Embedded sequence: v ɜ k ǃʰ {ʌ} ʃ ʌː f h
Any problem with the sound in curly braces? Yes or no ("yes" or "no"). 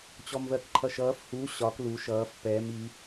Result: no